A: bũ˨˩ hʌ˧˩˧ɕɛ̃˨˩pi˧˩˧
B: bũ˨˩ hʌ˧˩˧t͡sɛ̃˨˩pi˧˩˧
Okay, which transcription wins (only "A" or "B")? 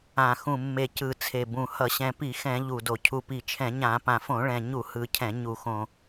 A